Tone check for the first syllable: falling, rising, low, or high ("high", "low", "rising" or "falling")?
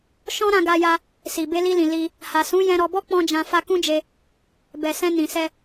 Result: high